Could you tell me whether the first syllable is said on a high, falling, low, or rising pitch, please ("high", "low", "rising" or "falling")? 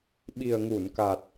low